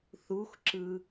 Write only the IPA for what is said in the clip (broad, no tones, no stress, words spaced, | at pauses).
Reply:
θuxǁɯ